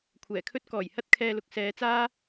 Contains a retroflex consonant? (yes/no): no